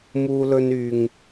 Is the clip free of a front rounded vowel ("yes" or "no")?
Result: no